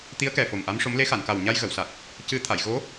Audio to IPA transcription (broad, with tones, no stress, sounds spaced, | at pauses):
t̪ i˧˥ ə̯ k ɛ˨˩ f o˨˩ m ʔ a˧˥ m ʂ o˧˥ m l e˧˥ x a˨˩˨ n k a˨˩ w ɲ a˧ j ɣ ə˨˩˨ w s a˨˩ t̚ | c ɨ˧ t̪ʰ a˨˩˨ j ɣ o˧˥